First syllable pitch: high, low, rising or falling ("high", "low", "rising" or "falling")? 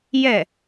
falling